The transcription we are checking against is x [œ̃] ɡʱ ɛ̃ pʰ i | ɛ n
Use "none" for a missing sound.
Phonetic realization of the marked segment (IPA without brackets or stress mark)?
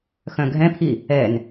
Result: œ̃